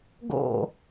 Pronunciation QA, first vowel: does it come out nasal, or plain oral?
oral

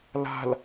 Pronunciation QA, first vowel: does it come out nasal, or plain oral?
oral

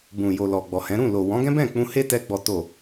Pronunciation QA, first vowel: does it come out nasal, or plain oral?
nasal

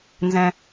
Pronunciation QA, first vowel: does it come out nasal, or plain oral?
nasal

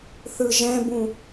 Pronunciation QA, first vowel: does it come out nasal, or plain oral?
oral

